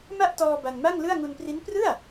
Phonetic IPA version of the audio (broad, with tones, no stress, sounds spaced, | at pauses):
m a˥˩ ʔ t ɔː˧ b a˧ n m a˥˩ ŋ l ɯ˥˩ a̯ ŋ u˧ n p r i˦˥ n p r ɯ˥˩ a̯